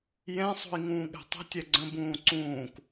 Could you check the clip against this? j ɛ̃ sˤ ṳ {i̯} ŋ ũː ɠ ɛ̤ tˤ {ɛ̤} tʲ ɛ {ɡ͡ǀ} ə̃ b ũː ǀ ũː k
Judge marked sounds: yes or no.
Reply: yes, no, yes

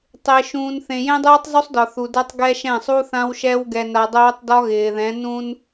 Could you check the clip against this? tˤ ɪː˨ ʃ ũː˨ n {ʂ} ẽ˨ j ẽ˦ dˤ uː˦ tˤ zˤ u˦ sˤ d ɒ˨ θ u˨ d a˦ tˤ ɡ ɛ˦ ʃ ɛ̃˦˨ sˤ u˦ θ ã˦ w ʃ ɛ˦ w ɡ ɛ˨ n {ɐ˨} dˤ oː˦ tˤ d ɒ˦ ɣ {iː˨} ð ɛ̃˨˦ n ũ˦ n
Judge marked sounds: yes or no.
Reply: no, no, no

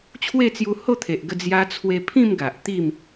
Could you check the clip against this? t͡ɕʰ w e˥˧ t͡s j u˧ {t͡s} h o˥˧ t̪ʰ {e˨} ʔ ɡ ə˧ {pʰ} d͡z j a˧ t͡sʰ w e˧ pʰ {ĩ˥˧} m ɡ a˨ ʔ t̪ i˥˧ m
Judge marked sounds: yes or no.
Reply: no, yes, no, yes

